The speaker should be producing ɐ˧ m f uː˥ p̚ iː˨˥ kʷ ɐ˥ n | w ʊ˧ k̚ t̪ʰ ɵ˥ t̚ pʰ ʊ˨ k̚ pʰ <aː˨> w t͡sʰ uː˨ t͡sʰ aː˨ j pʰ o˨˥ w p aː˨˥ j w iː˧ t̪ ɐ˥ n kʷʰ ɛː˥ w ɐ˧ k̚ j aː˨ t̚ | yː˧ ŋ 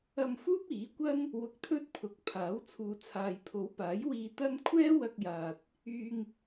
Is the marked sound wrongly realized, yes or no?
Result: yes